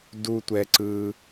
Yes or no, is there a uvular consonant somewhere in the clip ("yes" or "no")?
no